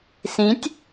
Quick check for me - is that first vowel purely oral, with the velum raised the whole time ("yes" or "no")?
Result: no